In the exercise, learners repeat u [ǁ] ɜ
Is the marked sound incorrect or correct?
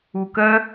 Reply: incorrect